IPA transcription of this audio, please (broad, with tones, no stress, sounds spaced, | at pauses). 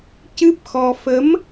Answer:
c ɨ˦˥ p̚ x ɔ˧ f ə˧˥ m